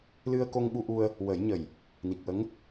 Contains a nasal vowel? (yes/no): no